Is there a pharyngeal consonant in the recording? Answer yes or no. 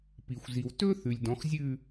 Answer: no